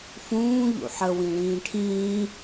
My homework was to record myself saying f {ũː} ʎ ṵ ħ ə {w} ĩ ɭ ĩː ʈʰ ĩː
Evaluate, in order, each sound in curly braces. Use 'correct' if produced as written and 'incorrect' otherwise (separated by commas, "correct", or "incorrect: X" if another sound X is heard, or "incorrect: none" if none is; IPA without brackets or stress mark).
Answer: correct, correct